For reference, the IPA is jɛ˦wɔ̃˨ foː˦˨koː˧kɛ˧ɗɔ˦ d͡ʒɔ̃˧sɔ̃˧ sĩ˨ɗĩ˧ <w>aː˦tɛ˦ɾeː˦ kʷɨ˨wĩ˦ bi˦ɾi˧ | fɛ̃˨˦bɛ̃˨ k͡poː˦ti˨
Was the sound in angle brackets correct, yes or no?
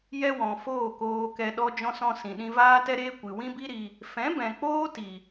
no